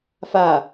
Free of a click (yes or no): yes